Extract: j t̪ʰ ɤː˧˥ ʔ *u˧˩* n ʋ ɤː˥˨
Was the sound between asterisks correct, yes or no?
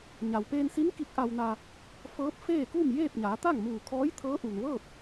no